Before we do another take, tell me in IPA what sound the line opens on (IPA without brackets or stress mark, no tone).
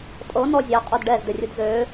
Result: tʼ